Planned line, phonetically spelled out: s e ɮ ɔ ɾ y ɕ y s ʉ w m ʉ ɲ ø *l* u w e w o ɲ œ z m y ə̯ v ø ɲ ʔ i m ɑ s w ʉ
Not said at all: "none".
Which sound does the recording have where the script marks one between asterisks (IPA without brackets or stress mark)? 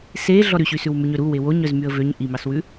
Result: ɾ